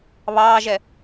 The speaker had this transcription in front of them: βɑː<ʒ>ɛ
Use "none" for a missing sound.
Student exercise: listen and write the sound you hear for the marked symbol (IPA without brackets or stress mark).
ʒ